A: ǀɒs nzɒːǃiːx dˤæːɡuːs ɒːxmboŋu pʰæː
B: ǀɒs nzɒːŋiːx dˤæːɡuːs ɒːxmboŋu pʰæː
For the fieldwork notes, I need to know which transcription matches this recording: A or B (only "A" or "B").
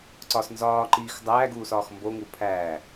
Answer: A